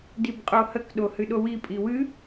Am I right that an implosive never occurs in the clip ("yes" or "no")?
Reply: no